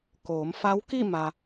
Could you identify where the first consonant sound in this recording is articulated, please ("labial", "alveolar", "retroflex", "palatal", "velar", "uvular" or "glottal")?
velar